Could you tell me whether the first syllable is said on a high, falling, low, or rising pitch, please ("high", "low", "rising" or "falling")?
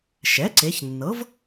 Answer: rising